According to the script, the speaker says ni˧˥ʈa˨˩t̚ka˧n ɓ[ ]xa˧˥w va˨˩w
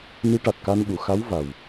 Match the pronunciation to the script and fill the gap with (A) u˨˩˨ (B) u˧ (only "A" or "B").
A